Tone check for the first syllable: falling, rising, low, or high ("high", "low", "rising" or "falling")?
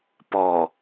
low